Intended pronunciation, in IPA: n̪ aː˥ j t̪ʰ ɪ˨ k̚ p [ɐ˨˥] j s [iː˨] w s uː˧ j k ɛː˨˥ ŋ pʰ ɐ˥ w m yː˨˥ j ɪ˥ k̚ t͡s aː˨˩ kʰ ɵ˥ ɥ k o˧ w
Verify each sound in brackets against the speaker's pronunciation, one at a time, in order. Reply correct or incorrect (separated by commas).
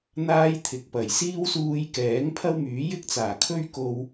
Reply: incorrect, incorrect